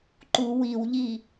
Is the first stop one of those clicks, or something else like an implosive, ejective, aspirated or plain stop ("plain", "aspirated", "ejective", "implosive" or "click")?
click